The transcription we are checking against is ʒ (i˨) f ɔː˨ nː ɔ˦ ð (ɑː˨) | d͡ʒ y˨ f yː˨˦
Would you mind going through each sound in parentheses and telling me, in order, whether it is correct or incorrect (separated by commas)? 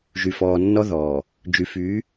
incorrect, incorrect